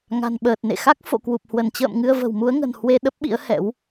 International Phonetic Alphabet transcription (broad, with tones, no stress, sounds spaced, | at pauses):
ŋ a̤˨˩ n ɓ əː˨˩ t̚ n ḛ˧˨ x a˦˥ k̚ f o̰˧˨ k w u˨˩ p̚ h w ə˧˩ n t͡ɕ ə̰ː˧˨ m ŋ ɨ˧ ə̯ v ə̤˨˩ w m u˨˦ ə̯ ŋ ə̤˨˩ n h w e˧ ɗ ə˦˥ p̚ ɓ ḭ˧˥ ə̯ h ɛ̰˧˥ w